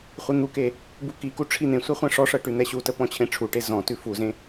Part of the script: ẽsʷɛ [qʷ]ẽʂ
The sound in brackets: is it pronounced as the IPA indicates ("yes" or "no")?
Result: no